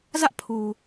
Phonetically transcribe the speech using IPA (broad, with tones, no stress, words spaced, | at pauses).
zä˦ʔ pʰu˨